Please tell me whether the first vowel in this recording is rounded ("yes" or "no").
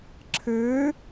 no